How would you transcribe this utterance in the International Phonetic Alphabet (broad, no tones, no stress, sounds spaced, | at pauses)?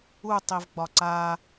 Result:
u tˤ i v ɡ͡b ɒ ǀ a